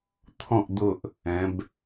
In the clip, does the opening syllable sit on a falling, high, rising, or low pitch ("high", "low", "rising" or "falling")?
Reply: falling